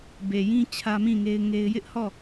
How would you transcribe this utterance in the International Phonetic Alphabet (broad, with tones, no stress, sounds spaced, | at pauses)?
b e˨ j ĩ˦ t͡ɕʰ ä˦ m ĩ˦˨ ŋ e˦ ɪ̯ ŋ e˦ ɪ̯ j ɪ˦ ʔ h ɔ˦˨